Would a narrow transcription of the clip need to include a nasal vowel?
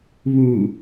no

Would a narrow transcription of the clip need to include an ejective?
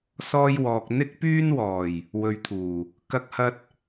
no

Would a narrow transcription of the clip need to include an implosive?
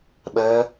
yes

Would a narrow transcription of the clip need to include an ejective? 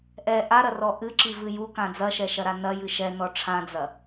no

